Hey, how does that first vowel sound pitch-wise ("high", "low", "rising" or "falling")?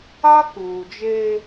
high